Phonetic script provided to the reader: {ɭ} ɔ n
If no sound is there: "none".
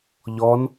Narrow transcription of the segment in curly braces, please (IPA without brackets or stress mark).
ʎ